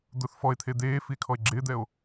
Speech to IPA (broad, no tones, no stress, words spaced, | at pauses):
d̪ʊθ fɔe̯t̪ʰe d̪eːfie̯ kʰɔe̯ɡ͡ǁɪːd̪ɛo̯